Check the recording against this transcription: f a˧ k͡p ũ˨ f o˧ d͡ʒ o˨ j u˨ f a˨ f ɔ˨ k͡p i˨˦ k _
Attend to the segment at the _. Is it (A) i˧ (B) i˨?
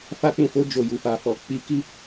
A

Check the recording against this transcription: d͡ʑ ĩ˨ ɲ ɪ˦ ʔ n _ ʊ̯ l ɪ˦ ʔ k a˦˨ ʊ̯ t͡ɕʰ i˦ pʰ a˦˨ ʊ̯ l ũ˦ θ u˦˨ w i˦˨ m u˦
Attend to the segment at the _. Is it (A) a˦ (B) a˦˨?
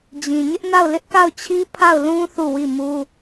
B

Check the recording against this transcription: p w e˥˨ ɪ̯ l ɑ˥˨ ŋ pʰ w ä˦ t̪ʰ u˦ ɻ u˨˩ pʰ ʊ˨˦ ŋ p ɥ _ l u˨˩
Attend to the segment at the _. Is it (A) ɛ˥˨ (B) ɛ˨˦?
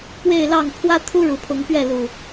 A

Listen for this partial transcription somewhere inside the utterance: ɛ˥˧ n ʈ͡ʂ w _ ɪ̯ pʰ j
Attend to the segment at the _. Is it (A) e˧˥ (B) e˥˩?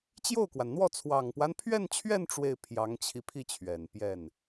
B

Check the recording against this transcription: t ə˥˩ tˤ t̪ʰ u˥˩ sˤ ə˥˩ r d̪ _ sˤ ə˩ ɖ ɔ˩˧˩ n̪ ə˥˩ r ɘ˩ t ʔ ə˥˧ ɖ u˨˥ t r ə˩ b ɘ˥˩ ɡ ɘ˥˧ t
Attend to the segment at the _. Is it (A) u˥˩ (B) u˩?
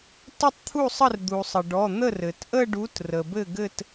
B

